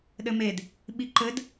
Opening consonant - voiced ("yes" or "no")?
yes